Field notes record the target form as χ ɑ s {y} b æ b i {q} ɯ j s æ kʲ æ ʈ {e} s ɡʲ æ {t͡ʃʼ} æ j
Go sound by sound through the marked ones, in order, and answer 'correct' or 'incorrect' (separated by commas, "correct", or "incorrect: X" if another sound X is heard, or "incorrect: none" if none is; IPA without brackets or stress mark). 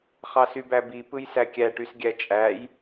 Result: correct, incorrect: p, incorrect: y, correct